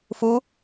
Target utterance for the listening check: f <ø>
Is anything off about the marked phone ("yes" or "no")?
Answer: yes